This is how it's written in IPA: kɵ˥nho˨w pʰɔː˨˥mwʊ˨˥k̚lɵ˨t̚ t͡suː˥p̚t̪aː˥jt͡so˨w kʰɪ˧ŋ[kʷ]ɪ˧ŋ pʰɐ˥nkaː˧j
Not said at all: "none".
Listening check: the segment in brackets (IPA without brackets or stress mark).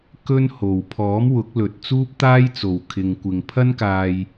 kʷ